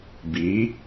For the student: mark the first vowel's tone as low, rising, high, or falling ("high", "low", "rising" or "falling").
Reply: rising